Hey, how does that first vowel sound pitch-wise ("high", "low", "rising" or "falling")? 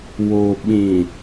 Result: low